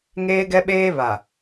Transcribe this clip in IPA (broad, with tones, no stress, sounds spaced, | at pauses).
ŋ eː˦ ɡ ɛ˦ ɓ eː˦ β a˨